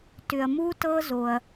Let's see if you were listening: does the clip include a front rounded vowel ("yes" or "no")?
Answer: yes